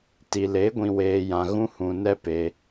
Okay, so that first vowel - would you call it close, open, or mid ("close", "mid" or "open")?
close